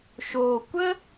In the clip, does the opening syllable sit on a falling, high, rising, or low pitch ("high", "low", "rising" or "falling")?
low